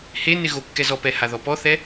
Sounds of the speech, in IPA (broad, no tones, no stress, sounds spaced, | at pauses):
h e n ɪ ɣ o kː ɛ z ɔ p ɛ h a ð ɔ p ɔ θ ɛ